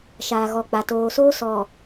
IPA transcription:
ʃ aː˨ ɣ ɔ˨ k͡p a˨ t oː˨ s oː˦ s ɔ˨

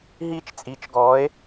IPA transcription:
ɦ iː˥˨ t͡ʃ t͡sʼ iː˨˥ t͡ʃ ɡ ɔː˨˥ e̯

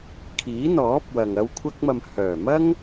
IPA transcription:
kʰ iː˨˥ n̪ ɔː˨˥ p̚ w ɐ˨ ŋ ɐ˧ w kʷʰ ɐ˧ k̚ m ɐ˨ m h œː˨˩ m ɐ˥ ŋ

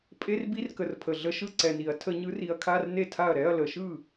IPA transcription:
pʼ e˧˥˧ r b i˧˥˧ r k ə˨˩ r pʰ ə˨˩ ɮ ə˧˥˧ ʃ ɯ˥˩ ǀ ɛ˨˩ n i˧˩˧ ɐ̯ tʰ ə˧˩˧ ɲ ɯ˨˦ r i˨˦ ɐ̯ kʰ a˧˥˧ r n e˥˩ tʰ a˥˩ ɐ̯ ɾ ɛ˧˥˧ ɐ̯ l ə˧˩˧ ʃ ɯ˥˩

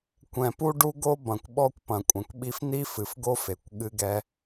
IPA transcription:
kʷ ɛ̃˩ p u˥ ɖ u˥ ɡ o˥ b ɐ̃˩ kʷ ɓ ɔ˥ kʷ p ɐ̃˩ kʷʼ ɐ̃˩ kʷ ɓ i˥ f n̪ i˥ f ɨ˩ f ɡ o˥ f e˩ kʷ ɠ ɨ˥ ɡ ɛ˥

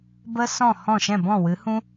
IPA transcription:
b ə˦ s ɔ̃˦˨ h ɔ̃˦˨ ʃ ɛ̃˦˨ b ɔ̃˦˨ w ɨ˨˦ h ũ˦

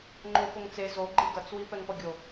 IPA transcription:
ŋ͡ǃ o f o ŋ t͡s e z o ɡ͡ǃ e ɡ ʌ t͡s w i p ɛ ŋ p ʌ ɡʲ o

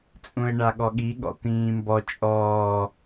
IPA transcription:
t͡sʼ ũ ɪ̯ ɳ a ɠ ɔ ɠ i ɠ ɔ̰ t̪ ĩː m b ɔ t͡ʃʼ ɔː

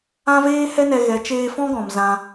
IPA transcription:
ã˦ v eː˦ h ɛ˦ n ɛ˧ ɣ ɛ˨˦ t͡ʃ eː˧ f ɔ̃˦ ɡ ɔ̃˨ m z ã˧

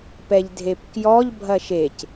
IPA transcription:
p ɛ ʎ dʱ e p k j ɔ ʎ bʱ ɐ ʃ e c

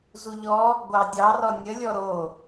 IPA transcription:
z u ʎ ɔ | ɡʷ ɑ dʲ ɑ r ɔ nʲ ə lʲ ɔ ɾ o

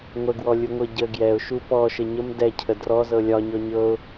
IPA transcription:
ŋʷ ə ɡ w ɔ lʲ u ŋʷ ɤ ɟ ə ɡ j ɛ ʊ̯ ʃ u p ɔ ʃ ə ɲ ə m d ɛ cʰ ə d r ɔ z ɤ lʲ ɒ ɲ ɔ ɲ ɤ ʊ̯

